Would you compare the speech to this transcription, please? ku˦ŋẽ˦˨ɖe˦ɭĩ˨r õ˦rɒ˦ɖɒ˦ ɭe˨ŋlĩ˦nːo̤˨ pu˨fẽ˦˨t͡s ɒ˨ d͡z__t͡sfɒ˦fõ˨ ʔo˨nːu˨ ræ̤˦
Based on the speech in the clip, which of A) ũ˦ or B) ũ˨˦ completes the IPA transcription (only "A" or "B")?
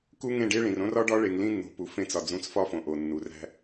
B